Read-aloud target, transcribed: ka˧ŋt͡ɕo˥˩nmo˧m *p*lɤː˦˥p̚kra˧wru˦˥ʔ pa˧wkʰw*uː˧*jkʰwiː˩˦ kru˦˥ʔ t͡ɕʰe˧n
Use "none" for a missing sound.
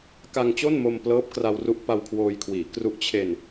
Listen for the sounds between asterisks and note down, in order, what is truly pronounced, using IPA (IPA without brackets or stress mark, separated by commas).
p, oː˧